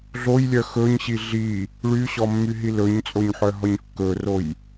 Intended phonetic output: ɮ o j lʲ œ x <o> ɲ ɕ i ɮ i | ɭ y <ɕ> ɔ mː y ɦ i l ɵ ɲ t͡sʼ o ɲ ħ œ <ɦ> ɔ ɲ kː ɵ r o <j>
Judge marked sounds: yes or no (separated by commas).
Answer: no, yes, yes, yes